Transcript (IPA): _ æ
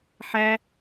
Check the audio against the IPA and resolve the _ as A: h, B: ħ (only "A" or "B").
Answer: B